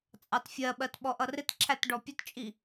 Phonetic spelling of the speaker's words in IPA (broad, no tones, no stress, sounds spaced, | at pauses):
t͡sʼ ɑ t fʲ ɜ ɓ ɜ t ɓ ɔ ʔ ʌ r ɪ t ǁʰ æ t ɖ ɔ pʲ ʊ t t͡ʃʼ i